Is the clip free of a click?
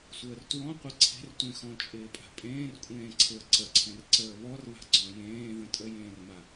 no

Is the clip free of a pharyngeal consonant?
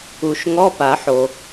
no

